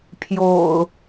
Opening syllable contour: low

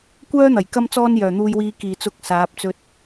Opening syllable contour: high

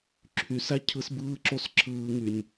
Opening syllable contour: low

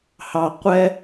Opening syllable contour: low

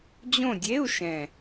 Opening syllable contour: falling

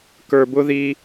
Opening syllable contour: low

